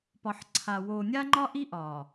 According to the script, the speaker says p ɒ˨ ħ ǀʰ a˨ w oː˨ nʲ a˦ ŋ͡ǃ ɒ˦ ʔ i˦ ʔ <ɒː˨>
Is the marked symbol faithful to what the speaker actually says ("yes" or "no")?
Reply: yes